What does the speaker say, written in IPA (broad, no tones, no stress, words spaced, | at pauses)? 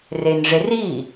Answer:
renʐeri